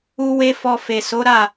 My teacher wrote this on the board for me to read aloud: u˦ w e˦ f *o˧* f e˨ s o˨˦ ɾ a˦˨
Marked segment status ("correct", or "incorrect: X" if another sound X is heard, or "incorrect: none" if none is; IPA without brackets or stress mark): incorrect: ɔ˧